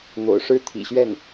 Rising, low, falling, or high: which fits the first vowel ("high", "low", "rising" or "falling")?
low